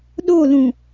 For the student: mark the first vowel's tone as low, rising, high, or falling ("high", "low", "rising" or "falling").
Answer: falling